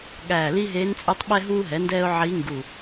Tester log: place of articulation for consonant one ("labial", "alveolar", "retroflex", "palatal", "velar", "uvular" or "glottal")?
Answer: velar